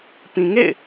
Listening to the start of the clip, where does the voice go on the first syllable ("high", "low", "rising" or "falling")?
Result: low